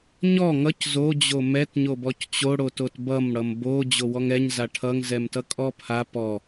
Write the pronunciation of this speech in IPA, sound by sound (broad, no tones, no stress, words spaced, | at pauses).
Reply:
ɲɔ ŋʌc zo d͡ʑomɛt ɲobɔct͡ɕo ɽototbʌm ɽʌmbo d͡ʑowɔŋɛɲ zaʈʰʌŋ zɛmtʌkʼɔpʰa pɔ